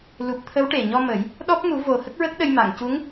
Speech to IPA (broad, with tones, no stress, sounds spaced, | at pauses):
l u˨˩ p̚ t̪ʰ ə˧˥ w ʈ e˨˩ ɲ ɔ˧ m ə˨˩˦ j | ɗ ɔ˦˥ p̚ m u˨˩˦ v o˨˩ h ə˦˥ k̚ ɹ ə˦˥ k̚ ɗ ə˧ j m a˨˩˨ ŋ c u˧˥ ŋ